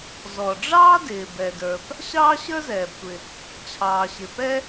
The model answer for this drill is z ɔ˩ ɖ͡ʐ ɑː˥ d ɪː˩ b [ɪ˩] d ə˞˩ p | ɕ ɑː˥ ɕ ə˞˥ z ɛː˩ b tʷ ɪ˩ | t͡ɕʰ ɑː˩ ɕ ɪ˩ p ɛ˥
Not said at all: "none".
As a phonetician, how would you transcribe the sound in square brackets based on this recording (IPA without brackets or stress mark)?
ɛ˩